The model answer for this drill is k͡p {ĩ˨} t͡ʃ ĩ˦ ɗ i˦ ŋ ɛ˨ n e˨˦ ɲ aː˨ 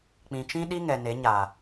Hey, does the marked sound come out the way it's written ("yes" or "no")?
yes